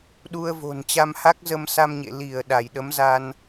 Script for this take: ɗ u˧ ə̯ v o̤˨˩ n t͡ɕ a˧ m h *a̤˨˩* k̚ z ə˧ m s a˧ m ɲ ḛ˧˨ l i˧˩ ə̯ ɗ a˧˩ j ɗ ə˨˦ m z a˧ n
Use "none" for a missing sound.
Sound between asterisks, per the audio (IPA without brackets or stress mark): a˦˥